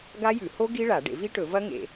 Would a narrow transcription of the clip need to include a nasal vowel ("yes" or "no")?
no